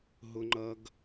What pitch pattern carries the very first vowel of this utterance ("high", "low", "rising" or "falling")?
high